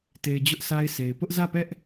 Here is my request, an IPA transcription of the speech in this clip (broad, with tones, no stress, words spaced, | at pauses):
te˨ɪ̯ d͡ʑʊ˦ʔsa˦ɪ̯sʰe˨ɪ̯ pʊ˦ʔzä˦˨pɛ˦ʔ